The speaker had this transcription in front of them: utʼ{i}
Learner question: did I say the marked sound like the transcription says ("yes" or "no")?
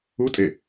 no